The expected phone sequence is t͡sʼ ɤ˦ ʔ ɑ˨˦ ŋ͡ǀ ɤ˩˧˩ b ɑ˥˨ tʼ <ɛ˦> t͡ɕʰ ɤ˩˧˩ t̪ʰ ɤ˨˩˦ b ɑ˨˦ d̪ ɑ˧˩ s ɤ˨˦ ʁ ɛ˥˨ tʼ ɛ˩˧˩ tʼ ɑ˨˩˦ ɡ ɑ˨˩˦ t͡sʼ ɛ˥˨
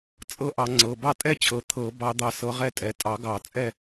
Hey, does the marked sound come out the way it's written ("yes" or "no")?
yes